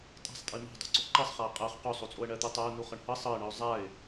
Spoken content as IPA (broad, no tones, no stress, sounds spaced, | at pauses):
tʼ a̤ sˤ tʼ i m a̤ dˤ ṳ ǀ o ǃ ɤ sˤ χ a ə̯ qʼ ɜ χ q o sˤ o t͡sʼ o ə̯ ɳ ɜ t̪ u tˤ a ʊ̯ n u χ ɤ ɳ h ɤ sˤ ɤ ɪ̯ ɳ ɤ ʊ̯ zˤ a ɪ̯